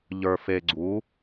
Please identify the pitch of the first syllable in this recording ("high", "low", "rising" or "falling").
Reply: low